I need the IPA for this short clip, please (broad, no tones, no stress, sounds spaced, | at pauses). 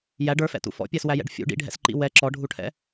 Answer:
j æ ɖ ə˞ f ɛ̰ t ṵ f ɔ̰ pʲ ɛ s w æ j ɛ̰ ɖ fʲ ṵ ɖ ḭ ɖʱ ɛ̰ s ǃ ḭ w ɛ ǁ ɔ ɖʱ u ʈʰ ɛ̰